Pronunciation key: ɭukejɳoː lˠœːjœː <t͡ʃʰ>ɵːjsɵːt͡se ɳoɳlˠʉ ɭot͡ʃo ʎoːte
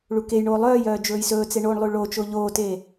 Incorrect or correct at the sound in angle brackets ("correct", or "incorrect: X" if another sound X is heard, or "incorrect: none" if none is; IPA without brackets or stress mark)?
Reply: incorrect: d͡ʒ